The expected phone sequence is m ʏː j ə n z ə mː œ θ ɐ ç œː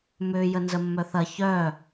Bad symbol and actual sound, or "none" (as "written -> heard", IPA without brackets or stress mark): none